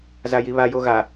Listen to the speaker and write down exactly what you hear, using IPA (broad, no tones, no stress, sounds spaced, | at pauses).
z a j i β a j o ɣ a